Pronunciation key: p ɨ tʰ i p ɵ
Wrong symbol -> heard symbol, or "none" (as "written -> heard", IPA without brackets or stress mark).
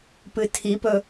none